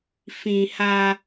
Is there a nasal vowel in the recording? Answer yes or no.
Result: yes